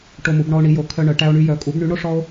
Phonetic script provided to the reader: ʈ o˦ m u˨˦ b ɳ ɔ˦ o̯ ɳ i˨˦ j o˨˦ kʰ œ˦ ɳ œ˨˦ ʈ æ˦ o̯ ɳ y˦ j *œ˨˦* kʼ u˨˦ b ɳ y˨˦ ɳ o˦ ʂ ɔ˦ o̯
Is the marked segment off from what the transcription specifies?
no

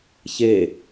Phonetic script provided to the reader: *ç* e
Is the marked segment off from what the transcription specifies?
no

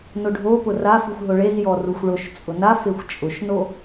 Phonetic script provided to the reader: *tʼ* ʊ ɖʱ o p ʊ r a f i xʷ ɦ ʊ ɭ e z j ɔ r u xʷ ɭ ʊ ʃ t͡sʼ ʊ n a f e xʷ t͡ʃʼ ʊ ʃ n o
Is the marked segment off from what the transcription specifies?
yes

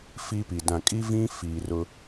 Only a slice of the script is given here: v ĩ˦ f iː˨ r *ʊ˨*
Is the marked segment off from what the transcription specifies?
yes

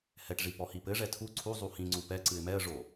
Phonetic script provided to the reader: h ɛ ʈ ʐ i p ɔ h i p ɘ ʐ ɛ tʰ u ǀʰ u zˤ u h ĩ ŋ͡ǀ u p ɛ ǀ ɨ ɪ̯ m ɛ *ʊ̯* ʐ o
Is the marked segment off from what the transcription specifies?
yes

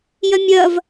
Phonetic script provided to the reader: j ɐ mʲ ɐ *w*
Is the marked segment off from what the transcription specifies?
yes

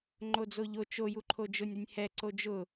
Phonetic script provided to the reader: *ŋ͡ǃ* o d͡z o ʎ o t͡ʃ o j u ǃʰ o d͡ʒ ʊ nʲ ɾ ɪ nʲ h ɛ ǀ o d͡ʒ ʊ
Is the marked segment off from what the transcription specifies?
no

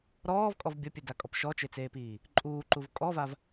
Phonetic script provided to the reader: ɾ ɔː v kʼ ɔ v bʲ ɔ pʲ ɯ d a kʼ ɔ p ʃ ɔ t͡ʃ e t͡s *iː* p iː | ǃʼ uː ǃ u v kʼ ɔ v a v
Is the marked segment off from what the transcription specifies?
yes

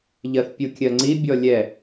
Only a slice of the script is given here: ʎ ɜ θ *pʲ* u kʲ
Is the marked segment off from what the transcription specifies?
no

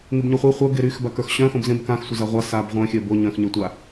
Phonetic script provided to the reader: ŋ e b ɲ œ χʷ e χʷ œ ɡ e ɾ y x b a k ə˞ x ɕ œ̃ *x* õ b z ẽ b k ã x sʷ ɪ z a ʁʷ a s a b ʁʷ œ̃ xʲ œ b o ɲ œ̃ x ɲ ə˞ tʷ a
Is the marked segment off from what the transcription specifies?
no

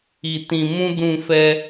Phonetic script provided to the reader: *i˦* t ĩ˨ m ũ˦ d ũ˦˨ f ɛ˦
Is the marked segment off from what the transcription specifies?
yes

